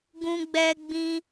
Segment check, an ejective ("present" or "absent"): absent